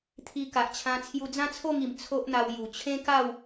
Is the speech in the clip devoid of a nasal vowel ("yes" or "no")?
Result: no